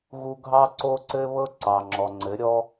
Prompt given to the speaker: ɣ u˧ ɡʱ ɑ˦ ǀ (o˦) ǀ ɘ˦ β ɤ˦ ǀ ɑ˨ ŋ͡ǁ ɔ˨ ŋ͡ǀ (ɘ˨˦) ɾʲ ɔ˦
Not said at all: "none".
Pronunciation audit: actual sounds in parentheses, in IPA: o˦, ɘ˨˦

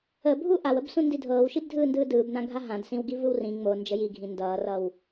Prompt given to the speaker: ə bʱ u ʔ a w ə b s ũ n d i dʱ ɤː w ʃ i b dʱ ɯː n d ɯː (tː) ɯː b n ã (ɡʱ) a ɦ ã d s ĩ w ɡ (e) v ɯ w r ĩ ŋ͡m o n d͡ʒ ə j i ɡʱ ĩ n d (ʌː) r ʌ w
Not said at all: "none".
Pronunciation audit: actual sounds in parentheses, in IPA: d, ɡʱ, i, ʌː

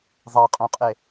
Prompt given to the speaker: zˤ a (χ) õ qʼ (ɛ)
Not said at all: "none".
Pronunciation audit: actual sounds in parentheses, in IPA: qʼ, e

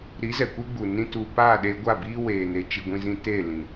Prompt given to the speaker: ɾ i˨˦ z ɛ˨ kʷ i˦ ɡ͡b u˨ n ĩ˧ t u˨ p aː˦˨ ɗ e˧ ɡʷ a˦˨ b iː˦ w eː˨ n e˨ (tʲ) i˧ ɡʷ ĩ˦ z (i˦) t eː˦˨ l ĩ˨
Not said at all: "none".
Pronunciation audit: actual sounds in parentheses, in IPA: t͡ʃ, ĩ˦

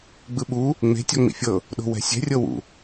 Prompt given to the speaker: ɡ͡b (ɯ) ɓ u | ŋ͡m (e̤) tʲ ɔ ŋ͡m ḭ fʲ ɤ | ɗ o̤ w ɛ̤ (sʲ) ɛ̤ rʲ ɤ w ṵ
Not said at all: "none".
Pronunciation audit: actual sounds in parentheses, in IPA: ɯ, e̤, sʲ

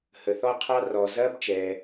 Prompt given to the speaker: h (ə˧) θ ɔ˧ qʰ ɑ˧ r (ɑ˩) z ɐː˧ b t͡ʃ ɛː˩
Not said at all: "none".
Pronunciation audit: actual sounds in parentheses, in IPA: ə˩, ɔ˩

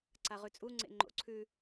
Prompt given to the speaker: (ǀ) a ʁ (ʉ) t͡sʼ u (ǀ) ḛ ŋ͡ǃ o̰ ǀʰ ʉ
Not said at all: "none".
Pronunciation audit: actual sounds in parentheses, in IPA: ǀ, ʉ, ŋ͡ǀ

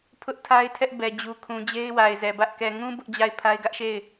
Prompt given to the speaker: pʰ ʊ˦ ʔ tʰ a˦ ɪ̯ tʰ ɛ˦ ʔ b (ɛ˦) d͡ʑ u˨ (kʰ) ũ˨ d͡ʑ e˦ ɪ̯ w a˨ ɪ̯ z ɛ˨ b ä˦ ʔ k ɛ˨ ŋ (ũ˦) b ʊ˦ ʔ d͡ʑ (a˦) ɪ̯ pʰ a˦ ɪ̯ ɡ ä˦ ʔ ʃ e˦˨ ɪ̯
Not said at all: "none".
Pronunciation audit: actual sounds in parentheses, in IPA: ɛ˨, kʰ, ũ˦, a˦˨

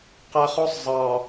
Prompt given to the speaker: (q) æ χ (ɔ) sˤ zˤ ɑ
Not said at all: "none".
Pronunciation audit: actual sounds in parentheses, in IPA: q, ɔ

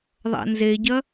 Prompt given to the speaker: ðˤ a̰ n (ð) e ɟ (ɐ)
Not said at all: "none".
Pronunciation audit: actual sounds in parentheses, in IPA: z, ɐ

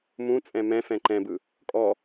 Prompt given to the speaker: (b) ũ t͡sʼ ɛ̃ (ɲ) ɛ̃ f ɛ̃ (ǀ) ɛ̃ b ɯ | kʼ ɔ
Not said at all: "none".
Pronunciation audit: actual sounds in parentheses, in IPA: m, m, ǃ

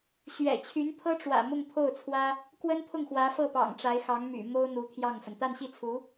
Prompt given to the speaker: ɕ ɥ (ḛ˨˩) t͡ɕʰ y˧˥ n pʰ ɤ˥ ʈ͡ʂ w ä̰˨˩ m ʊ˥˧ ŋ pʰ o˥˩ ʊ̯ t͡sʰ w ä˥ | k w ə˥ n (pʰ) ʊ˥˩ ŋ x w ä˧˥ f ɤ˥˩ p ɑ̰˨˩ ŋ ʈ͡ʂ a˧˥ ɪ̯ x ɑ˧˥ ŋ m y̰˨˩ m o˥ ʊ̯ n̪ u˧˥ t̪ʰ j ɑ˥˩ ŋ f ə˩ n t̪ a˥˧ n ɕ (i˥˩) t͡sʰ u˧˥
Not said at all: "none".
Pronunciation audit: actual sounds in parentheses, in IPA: ɛ̰˨˩, t̪ʰ, i˥˩

